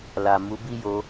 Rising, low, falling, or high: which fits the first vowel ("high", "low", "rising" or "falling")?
low